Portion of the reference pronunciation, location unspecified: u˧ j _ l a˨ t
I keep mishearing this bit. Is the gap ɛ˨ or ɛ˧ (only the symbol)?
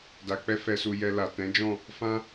ɛ˧